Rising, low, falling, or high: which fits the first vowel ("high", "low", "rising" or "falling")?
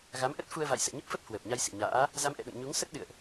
rising